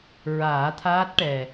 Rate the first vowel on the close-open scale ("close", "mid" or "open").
open